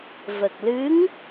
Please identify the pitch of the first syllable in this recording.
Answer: low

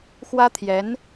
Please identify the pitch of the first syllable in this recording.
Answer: high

